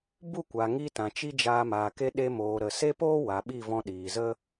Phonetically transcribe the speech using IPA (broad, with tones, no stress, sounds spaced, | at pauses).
b u˦˨ kʷ a˨ ŋ i˧ t ã˨ t͡ʃ i˦ d͡ʒ aː˧ m aː˨ k e˧ ɗ e˧ m oː˨ ɾ ə˨ s e˦ p oː˦ w a˨ ɓ i˦˨ v ɔ̃˧ ɗ iː˨ z ə˦